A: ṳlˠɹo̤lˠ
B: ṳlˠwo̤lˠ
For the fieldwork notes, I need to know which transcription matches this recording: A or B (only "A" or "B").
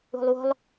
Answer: B